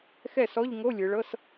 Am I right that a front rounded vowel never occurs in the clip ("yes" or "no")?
yes